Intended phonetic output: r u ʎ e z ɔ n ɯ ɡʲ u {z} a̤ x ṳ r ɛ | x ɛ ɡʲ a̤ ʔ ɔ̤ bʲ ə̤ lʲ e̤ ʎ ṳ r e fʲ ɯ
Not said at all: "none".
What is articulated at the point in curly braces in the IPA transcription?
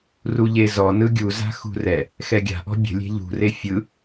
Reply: z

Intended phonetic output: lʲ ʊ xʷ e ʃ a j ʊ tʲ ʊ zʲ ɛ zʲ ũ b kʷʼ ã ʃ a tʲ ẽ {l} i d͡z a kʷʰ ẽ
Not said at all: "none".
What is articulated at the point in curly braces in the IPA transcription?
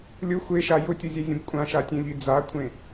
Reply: ʎ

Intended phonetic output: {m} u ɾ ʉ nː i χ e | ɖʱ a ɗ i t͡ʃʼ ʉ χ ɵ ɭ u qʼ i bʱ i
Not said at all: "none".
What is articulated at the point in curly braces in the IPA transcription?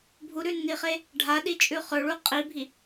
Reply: bʱ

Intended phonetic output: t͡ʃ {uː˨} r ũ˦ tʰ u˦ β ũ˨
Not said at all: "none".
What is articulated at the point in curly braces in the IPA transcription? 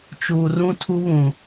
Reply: uː˨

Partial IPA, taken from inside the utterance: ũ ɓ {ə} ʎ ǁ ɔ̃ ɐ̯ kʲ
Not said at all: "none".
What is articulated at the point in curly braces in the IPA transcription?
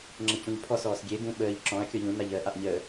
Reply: əː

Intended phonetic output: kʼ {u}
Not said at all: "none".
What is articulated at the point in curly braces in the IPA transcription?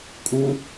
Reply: u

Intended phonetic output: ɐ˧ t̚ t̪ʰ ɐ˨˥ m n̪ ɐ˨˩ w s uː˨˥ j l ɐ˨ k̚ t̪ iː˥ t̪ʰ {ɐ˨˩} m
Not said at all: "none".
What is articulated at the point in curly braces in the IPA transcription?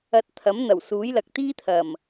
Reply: ɐ˨˩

